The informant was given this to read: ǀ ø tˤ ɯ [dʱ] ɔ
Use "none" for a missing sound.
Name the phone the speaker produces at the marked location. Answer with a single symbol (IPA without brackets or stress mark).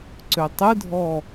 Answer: dʱ